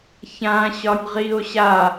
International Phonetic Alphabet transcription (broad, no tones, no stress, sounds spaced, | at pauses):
ç ã ɕ ɒ nʲ ʁ i o̯ ɕ a